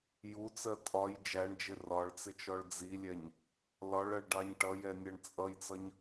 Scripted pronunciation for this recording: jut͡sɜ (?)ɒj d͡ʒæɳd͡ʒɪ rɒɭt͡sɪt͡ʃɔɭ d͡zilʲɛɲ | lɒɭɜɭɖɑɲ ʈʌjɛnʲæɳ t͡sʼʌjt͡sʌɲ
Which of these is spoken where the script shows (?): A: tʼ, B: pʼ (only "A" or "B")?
A